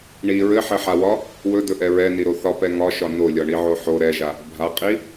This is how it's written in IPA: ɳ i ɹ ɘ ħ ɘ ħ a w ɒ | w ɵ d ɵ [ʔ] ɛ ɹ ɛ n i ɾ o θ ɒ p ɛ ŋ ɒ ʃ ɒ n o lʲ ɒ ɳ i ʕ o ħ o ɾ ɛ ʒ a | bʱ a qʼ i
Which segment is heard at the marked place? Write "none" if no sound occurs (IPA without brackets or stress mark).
ʔ